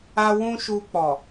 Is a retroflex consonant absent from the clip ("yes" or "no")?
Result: yes